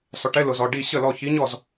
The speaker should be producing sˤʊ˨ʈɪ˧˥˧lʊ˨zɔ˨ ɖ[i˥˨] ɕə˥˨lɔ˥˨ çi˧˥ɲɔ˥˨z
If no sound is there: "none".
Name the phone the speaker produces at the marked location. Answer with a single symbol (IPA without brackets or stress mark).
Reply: i˥˨